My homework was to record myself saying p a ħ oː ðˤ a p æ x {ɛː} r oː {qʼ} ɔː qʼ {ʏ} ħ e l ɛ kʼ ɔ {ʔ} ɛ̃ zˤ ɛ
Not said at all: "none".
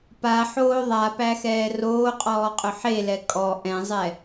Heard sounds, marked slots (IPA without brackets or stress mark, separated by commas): ɛː, qʼ, ʏ, ʔ